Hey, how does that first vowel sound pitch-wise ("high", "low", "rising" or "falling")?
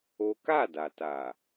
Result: high